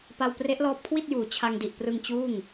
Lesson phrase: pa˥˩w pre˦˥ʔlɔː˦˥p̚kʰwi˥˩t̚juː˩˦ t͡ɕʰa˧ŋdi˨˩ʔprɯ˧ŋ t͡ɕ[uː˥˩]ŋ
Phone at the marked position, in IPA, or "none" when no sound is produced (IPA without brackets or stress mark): uː˥˩